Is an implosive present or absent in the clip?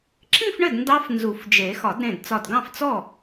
absent